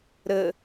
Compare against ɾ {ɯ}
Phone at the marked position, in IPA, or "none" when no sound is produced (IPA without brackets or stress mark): ə